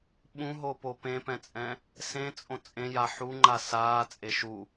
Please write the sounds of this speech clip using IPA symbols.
ɓ ũ ɦ o p o p ẽ p ɛ̃ t͡sʼ ɛ̃ | s ẽ t͡sʼ õ t͡sʼ ẽ j a ħ u ŋ͡ǃ a s aː t͡sʼ e ʃ u

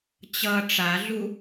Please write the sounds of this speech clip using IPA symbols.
t͡ɕ ʌ ʈ͡ʂ a ɮ u

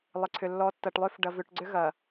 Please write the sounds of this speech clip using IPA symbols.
lˠ ɪ˨ ǀʰ ʏ˨ lː ɔ˨˦ tː ɐ˨ ʈ lˠ ø˦ f ɖ ɐ˨ v ʏ˨ ʈ ɡ͡ǀ ʏ˦ ɣ ɐ˨

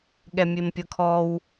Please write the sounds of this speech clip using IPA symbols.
ɠ ɛ mʲ e m pʲ ɤ kʰ ɔ w

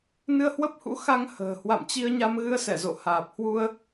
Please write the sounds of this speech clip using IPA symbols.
n ɨ˧ ə̯ h w ə˦˥ p̚ h ṵ˧˥ x a˧ ŋ h ə̤ː˨˩ h w a̰˧˨ m t͡ɕ i˧ ə̯ ɲ a˧ m ɣ ɨ˧ ə̯ s ɛ˧˩ z o̰˧˨ h aː˨˩ p̚ h w u˧ ə̯

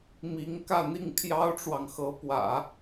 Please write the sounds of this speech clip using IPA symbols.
m i˧˥ ŋ k ä˥˧ n̪ i˥˩ ŋ pʰ j ɑ˥ ʊ̯ ʈ͡ʂ w ɑ˨ ŋ x ɤ˧˥ p w ä̰˨˩˦

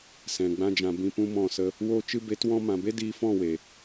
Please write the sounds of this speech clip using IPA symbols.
s ɛ̃˨ ɡ͡b ã˧ d͡ʒ ã˨ b ĩ˧ p ũ˦ m ɔ̃˦˨ s ə˦ | w oː˧ t͡ʃ ɨ˧ b e˨˦ t w ɔ̃˧ m ã˨ b e˦ d iː˧ f ɔ̃˦˨ w e˨

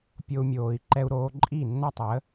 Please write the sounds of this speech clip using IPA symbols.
pʲ o˦ u̯ mʲ oː˧ i̯ ǃ ɛ˦ u̯ ɾ oː˦ ǃʼ i˦˨ nː ɐ˦ tˤ əː˨˦

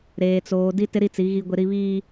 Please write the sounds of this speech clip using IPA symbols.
ɾ eː˨ t͡s oː˨ d i˦ t ɪ˦ ɾ i˦˨ t͡s i˨˦ ɣ i˦ ɡʷ ɪ˦ ɾ i˦ β iː˦

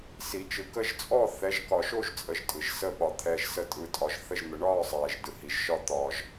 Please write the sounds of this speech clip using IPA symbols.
s i˨˩˦ t͡ʃ ɯ˨ k ə˥˨ ʒ t͡sʼ ɔ˥˨ θ ɛ˨˦ ʒ k ɒ˨ ʃ o˥˨ ʒ t͡sʼ ə˨˦ ʒ tʼ ɯ˨ ʒ s ə˥˨ ɓ ɒ˨ t̪ʰ ɛː˨ ʒ s ə˨˦ tʼ ɯ˨˦ tʼ ɒ˨˦ ʒ θ ə˥˨ ʒ n̪ ə˨˩˦ ɳ ɒː˥˨ sˤ ɛː˨ ʒ d ɯ˨ h i˨ ʒ ʃ ɒ˥˨ t̪ ɒː˨ ʒ

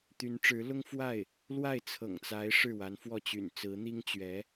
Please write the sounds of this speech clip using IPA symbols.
t̪ y˧˥ n ʈ͡ʂ ɻ̩˧˥ l ʊ˥ ŋ f w a˥˩ ɪ̯ | l w a˥˩ ɪ̯ t͡sʰ ɤ̰˨˩ ŋ t͡s a˧˥ ɪ̯ ʂ ɻ̩˥˩ w a˧˥ n f w ɔ˥˩ t͡ɕ y̰˨˩ n t͡s ɹ̩˧˥ n̪ i˥ ŋ t͡ɕ ɥ ɛ˧˥

